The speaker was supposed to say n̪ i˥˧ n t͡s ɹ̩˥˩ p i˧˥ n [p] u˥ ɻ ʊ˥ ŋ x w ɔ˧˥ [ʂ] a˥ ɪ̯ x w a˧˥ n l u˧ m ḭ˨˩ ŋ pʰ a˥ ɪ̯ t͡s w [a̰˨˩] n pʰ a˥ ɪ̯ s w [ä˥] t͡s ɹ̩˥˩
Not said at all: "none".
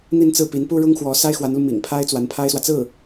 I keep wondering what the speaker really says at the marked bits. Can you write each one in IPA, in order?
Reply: p, s, a˧˥, ä˨

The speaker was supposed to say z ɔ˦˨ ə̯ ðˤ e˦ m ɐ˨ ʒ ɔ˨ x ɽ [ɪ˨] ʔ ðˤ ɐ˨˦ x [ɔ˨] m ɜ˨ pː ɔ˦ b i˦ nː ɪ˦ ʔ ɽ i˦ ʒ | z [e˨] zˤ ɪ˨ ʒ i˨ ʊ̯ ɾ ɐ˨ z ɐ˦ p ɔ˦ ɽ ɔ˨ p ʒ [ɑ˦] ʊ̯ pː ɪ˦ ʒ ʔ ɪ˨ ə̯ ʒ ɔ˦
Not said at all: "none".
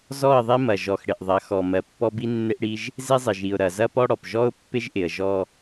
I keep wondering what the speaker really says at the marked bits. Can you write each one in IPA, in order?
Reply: ɪ˨, ɔ˨, e˦, ɔ˦

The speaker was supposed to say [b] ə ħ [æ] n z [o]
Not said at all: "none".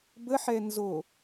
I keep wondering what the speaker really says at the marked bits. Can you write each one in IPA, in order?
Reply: b, ɛ, o

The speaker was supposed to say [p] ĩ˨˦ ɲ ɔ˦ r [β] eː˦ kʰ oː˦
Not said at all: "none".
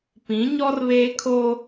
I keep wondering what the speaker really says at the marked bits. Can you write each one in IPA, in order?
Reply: p, β

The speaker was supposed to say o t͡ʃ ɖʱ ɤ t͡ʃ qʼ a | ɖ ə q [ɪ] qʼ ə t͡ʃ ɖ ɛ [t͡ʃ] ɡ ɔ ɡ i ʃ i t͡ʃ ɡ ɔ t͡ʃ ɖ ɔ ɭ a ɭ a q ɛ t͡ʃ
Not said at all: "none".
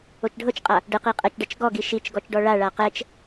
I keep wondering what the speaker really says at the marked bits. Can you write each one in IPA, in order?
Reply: i, t͡ʃ

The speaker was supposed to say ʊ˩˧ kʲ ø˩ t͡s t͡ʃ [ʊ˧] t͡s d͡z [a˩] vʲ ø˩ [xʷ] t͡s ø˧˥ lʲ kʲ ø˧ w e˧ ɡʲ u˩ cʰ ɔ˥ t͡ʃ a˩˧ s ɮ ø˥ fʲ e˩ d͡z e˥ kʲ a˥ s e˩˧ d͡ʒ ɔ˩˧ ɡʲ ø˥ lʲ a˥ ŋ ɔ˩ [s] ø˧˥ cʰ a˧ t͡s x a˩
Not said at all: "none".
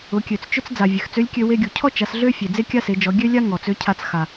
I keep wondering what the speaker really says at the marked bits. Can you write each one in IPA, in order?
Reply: ʊ˥, a˩, x, t͡s

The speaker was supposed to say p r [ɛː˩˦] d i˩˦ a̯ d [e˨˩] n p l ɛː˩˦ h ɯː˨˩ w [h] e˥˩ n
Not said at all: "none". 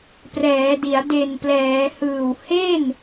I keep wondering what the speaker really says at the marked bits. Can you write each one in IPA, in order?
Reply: ɛː˩˦, e˨˩, h

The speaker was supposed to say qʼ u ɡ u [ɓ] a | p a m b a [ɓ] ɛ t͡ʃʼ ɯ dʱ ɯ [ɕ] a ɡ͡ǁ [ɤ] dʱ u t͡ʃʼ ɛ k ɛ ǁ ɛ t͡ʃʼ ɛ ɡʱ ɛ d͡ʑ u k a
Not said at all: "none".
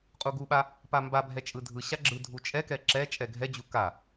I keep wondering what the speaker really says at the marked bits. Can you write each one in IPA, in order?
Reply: ɓ, bʱ, ɕ, ɯ

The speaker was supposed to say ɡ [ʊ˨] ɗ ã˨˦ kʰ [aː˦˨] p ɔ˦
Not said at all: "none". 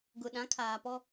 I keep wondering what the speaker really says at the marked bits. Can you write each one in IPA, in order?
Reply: ʊ˨, aː˨

